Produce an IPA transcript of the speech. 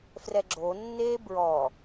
f r ɛ ɡ͡ǁ o nː eː b ɹ ɔ

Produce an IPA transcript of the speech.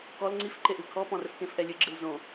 k ɔ l ŋ͡ǀ i f ǃ e ʔ ɨ kʰ ɔ p ɔ̃ r ɘ f k ẽ f ʔ ɛ lʲ ɨ ɡ͡ǁ ɨ l z õ

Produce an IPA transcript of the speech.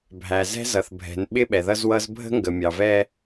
bʱ æ˨ z ɛ̤˦ z ʌ˨ θ bʱ ɛ̤˨˦ n ɓ ɪ˦ ɓ ɛ˨ ð ʌ˦ z w ʌ˦ z bʱ ə̤˦ ŋ ɡ ə˨ mʲ ɑ˨ v ɛ˦

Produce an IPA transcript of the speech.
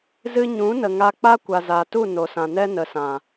z ɨ˧ ɲ ũ˨˦ n ə˨ ŋ a˧ k͡p a˦ kʷ a˨ z a˨ t u˦˨ n o˨ s ã˨ n ɛ˦ n ə˨ s ã˨

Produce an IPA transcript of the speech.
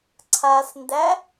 ǀʰ a s n d æ

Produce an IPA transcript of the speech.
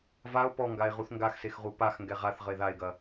v a o̯ p ɔ ŋ ɡ a e̯ ʁ u θ ŋ ɡ a x s e x ʁ u p a x ŋ ɡ ɛ ʁ a θ ʁ ə e̯ ð a e̯ ɡ ɐ

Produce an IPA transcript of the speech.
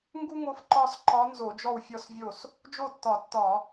ŋ ɡ u˥ ŋ o˧˥ f ǃ ɒ˥˧ s ǃ ɒ˧˥ n z o˧˩˧ d͡ʒ ɔ˥˩ w fʲ ɔ˥˩ s vʲ o˥˩ s | d͡ʒ o˥˩ tː ɒ˧˩˧ tː ɒ˧˩˧

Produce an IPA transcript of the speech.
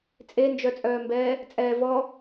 t͡sʼ e n d͡ʒ œ t͡sʼ œː m b ɛː | t͡sʼ ɛː v ɔ

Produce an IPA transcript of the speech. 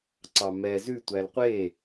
ǀ ɑ m ɛ z ʉ tʷ æ l qʷ e

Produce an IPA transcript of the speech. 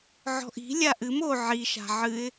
ʕ ɔ̤ ʔ i̤ lʲ a ʔ ɨ m o ʕ i ʃ a̤ ʕ ɨ ɪ̯

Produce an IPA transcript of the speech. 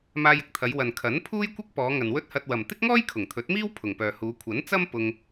m aː˧ j ɪ˧ k̚ t̪ʰ ɐ˨˧ j w ɐ˨ n kʰ ɐ˨˥ n pʰ uː˥ j kʷ ɪ˥ k̚ p ɔː˨˧ ŋ ɐ˨ n w ɵ˥ t̚ h ɐ˧ t̚ w ɐ˨ m t̪ ɪ˥ k̚ ŋ ɔː˥ j kʰ ʊ˨˩ ŋ t̪ʰ ɵ˨˥ t̚ m iː˥ w pʰ ʊ˨˩ ŋ p œː˨ h uː˨˧ kʷʰ ɐ˨˥ n t͡s ɐ˥ m p ʊ˧ ŋ

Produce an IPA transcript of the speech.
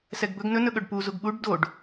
s ɛ ɡ b ɵ ɡ n ɵ n ɵ ɠ ɵ ɖ p u z u ɡ ɓ u ɖ d o ɖ

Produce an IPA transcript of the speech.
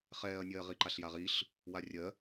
χ ɛː ɐ̯ nʲ ɜː ʁ i ǃ a ɬ j a ʁ i ɬ | w a rʲ ɜ

